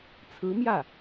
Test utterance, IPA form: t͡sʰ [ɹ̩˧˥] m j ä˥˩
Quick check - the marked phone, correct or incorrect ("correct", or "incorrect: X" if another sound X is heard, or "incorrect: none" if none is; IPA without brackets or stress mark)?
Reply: correct